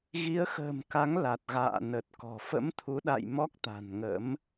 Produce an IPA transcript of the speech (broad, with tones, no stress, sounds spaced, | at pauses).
ɣ i˨˦ ə̯ x ə̤ː˨˩ m k a˨˦ ŋ l a˨˩ t̚ ɣ a̰ː˧˨ n ə˨˩ t̚ k ɔ̤˨˩ f ə̰˧˥ m t̪ʰ u˨˦ ɗ a̰˧˨ j m ɔ˦˥ k̚ t̪ a̤˨˩ n ŋ ə̰˧˥ m